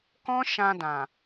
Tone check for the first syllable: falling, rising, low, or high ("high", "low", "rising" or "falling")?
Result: high